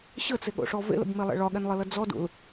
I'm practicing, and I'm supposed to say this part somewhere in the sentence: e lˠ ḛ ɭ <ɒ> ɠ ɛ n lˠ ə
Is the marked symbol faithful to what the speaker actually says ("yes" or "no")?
yes